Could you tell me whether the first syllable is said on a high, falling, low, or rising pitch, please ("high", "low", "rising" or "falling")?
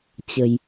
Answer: low